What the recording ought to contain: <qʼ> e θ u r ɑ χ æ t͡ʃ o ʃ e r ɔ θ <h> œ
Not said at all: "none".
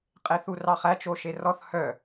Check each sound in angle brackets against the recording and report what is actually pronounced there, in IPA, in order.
qʼ, h

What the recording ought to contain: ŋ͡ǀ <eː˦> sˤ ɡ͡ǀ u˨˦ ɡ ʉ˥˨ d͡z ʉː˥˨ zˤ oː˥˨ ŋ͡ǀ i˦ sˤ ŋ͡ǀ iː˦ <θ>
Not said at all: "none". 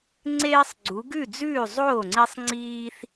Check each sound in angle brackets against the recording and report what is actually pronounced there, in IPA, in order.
eː˦, θ

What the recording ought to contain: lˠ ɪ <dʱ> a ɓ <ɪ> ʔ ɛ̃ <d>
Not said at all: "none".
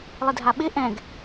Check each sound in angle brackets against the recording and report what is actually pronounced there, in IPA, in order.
dʱ, ɪ, ɡ

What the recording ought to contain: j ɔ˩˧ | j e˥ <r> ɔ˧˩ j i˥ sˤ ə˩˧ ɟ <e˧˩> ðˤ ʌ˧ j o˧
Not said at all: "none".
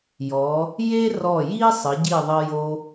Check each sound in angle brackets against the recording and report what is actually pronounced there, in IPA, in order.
r, i˧˩

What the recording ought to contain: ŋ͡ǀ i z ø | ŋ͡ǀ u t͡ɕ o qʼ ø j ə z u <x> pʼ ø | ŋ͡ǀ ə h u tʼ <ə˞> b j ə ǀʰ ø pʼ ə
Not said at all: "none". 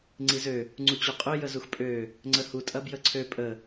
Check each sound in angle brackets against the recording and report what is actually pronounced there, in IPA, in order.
x, ɐ

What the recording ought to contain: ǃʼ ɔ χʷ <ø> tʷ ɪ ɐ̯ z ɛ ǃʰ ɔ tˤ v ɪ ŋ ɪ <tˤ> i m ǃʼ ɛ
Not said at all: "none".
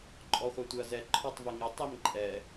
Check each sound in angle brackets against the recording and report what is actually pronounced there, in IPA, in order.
ɛ, tˤ

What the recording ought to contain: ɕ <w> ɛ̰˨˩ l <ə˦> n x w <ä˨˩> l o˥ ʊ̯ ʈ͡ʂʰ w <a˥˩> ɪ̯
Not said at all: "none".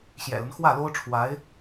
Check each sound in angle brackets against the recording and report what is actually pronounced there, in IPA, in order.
j, ə˦, ä˥˩, a˧˥

